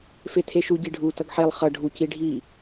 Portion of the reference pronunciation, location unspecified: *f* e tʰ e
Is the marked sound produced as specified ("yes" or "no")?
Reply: yes